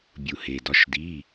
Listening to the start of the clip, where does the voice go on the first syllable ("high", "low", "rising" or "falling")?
low